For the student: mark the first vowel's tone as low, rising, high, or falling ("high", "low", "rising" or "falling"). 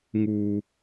high